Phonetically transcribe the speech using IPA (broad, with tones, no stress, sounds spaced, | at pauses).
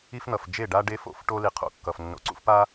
i˦ f n̪ ʌ˨ f d͡ʒ e˦˨ ɖ a˦ ɖ e˦ f o̰˨ f ʈ o˦ l i˨ qʰ o̰˨ kː ʌ˨ f nː o̰˨ ǀ ṵ˦ f p a˦